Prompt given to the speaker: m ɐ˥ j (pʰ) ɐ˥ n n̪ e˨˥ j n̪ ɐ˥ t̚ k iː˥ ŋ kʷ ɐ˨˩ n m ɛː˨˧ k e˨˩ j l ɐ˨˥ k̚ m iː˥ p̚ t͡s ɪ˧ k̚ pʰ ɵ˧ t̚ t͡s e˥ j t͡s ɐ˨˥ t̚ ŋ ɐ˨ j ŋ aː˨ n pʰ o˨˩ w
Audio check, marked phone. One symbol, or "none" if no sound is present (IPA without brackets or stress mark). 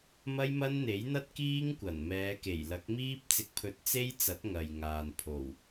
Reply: m